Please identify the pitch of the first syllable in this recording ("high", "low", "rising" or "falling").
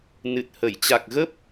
low